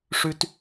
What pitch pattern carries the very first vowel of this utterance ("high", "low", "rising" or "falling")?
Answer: high